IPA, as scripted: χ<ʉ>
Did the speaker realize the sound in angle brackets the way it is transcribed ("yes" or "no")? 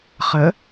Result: no